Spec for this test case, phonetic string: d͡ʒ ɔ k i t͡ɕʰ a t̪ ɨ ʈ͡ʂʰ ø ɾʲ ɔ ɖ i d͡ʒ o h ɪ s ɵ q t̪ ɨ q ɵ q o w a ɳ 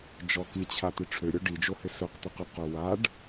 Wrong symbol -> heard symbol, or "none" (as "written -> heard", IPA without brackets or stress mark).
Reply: ɳ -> ɖ